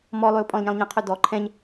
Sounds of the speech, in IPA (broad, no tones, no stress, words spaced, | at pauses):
mɔlˠøo̯ pʼɔ̃lɲẽlˠɲə̃qʰø dɔ ǃʰɛ̃ɲ